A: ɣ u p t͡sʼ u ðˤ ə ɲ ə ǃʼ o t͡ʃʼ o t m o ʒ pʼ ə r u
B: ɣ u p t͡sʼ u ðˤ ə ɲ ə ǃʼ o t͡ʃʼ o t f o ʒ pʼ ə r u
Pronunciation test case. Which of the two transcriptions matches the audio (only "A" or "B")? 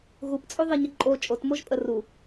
A